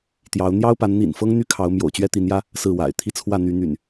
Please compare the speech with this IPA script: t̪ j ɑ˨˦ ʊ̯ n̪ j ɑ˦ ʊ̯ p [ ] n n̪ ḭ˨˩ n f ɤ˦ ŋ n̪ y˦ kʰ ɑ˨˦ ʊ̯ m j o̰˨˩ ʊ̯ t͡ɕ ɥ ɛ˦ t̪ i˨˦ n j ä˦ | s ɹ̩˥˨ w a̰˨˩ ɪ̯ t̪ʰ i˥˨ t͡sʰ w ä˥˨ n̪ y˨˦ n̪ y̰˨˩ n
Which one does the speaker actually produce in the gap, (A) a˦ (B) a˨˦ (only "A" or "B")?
B